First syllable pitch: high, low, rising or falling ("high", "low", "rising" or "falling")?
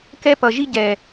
high